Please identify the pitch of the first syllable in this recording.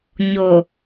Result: low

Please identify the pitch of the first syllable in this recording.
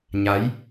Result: rising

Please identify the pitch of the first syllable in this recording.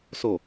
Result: low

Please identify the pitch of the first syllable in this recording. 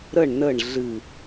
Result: falling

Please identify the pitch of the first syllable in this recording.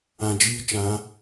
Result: low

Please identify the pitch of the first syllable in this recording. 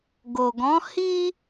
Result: low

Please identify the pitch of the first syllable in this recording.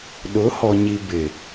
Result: rising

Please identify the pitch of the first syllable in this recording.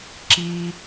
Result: high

